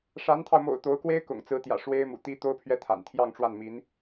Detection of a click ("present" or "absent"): absent